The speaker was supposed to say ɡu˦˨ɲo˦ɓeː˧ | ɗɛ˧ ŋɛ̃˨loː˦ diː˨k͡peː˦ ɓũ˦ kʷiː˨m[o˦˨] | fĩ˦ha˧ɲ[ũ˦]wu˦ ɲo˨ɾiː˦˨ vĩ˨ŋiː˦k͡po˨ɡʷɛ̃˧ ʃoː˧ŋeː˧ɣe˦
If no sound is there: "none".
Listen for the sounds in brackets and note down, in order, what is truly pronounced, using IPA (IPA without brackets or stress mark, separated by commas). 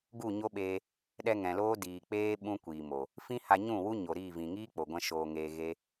o˨, ũ˦˨